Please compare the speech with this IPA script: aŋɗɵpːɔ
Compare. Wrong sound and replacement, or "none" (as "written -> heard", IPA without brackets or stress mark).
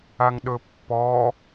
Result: none